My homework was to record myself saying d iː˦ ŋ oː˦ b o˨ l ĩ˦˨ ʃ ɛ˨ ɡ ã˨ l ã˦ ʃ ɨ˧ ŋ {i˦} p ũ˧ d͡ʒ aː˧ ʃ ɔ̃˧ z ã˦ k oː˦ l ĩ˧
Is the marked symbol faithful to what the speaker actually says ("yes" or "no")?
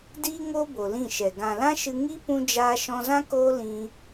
yes